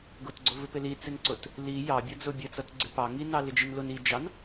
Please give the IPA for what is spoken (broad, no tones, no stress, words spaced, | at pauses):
ɡʊtɡ͡ǀʊvɪpɪ lit͡sɪnǀʊt | li jɑbʲʌ d͡zʊbʲət͡sʌt ɡ͡ǀɪpɑ ŋinɑ lɪd͡ʒinlʊn id͡ʒɑn